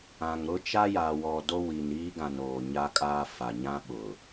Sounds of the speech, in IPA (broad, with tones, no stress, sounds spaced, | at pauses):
ã˨ ŋ ɾ ʊ˦ t͡ʃ a˦ j a˨ w ɔ˨ d o˦ w i˨ n iː˦ ɡ ã˨ n oː˨ ɲ a˦ kʼ aː˦ f a˨ ɲ ã˦ ɓ ʊ˨